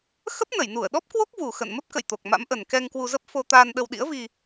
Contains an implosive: yes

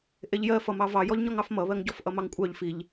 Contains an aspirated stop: no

